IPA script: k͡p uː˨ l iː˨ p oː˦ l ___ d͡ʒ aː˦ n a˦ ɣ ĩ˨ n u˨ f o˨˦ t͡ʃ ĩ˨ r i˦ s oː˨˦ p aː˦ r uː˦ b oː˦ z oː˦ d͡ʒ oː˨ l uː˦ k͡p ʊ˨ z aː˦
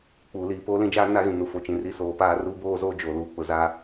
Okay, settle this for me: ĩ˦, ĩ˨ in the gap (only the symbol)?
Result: ĩ˦